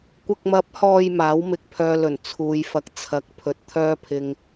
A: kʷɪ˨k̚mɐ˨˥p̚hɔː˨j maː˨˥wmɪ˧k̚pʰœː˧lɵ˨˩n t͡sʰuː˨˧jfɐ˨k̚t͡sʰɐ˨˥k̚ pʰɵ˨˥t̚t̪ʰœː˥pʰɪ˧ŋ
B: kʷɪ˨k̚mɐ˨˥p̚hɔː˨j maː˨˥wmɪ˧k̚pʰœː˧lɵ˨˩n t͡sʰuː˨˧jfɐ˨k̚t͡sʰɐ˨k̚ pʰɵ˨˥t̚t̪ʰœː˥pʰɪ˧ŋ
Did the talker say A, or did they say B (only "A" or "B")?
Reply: A